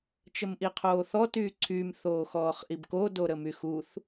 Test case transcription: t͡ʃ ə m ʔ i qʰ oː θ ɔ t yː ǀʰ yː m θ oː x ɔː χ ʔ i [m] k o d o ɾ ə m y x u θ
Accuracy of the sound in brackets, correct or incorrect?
incorrect